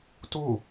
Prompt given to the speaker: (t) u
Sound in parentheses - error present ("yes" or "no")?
no